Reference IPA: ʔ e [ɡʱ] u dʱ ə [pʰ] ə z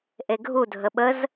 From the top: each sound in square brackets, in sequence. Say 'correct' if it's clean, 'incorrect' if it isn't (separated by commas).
correct, incorrect